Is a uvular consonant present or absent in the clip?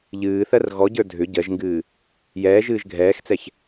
absent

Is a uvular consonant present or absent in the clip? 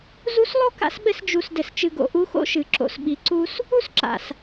absent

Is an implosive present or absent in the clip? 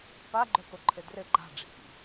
absent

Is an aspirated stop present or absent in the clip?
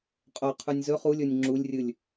present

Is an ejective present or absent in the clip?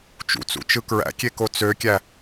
absent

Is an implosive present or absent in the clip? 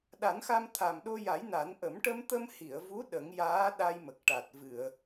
present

